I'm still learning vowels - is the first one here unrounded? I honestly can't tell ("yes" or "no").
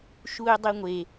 no